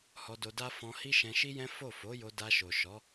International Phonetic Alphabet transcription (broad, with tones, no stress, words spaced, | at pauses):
hɔ˧do˧da˦ fɔ̃˧ hi˦ʃɛ̃˧ʃi˦jɛ̃˦ fo˦˨ fo˨˦jo˧da˧ ʃo˨ʃɔ˨˦